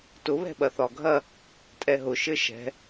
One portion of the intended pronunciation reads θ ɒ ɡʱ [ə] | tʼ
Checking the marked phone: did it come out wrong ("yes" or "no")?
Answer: yes